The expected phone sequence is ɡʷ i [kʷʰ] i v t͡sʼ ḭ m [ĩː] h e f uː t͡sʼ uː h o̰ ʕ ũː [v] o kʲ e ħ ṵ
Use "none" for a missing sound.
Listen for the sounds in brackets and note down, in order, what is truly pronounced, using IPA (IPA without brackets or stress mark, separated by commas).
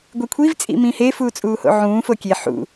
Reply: kʷʰ, ĩ, f